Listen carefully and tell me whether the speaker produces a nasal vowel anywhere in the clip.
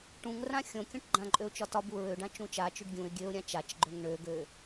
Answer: yes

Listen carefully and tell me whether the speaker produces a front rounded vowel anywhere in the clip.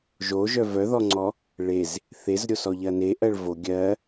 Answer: yes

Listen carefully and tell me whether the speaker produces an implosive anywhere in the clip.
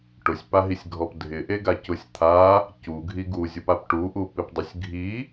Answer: no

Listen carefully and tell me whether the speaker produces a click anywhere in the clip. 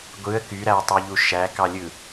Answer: no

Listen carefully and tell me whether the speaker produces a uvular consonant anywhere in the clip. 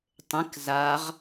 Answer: yes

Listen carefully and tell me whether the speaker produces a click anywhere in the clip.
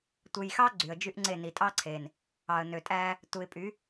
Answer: yes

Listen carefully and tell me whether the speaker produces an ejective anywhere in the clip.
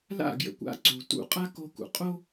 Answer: yes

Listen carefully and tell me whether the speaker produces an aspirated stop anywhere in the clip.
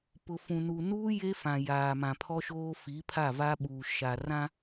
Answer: yes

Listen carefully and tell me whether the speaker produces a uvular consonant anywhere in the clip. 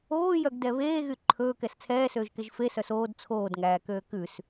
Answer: no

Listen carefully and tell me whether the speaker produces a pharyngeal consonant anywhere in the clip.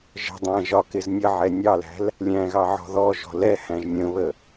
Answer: yes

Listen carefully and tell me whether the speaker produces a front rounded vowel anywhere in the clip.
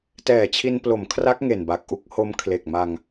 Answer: no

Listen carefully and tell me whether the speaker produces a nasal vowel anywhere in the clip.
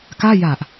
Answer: no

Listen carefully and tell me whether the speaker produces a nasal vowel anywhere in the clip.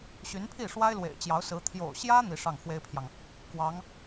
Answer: no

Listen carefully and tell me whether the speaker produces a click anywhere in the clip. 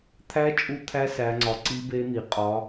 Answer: yes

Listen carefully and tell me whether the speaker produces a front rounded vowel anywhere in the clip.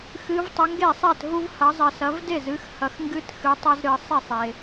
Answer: no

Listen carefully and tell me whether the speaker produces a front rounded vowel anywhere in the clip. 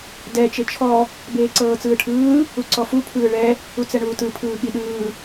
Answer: no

